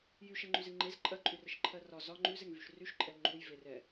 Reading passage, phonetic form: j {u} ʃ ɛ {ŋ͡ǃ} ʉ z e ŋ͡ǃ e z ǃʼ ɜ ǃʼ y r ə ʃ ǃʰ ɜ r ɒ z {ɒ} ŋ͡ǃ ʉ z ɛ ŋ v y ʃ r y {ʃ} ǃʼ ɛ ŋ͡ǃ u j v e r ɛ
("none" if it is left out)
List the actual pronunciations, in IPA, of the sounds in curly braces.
y, ŋ͡ǃ, ɒ, ʃ

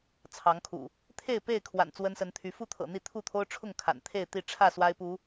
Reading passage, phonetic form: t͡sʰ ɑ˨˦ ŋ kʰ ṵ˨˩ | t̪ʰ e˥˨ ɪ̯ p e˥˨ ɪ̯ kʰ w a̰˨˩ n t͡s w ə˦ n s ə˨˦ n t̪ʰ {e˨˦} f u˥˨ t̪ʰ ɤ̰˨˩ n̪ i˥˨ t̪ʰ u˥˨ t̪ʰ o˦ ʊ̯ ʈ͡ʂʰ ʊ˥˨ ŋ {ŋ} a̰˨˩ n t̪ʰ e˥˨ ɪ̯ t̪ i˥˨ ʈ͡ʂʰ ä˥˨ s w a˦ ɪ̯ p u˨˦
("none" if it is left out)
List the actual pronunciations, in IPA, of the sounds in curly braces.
y˨˦, kʰ

